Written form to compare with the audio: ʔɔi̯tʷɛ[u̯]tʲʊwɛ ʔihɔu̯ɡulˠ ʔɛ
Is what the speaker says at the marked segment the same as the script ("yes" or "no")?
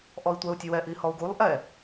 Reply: yes